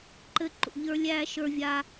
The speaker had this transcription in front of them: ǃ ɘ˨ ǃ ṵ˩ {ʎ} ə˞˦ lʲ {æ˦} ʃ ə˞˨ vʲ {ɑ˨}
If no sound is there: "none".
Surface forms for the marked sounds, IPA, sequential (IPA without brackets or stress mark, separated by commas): ʎ, æ˦, a˨